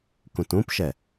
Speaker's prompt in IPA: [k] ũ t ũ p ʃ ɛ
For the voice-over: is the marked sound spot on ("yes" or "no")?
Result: yes